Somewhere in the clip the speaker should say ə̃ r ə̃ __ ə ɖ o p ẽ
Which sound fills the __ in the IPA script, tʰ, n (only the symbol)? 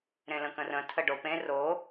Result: tʰ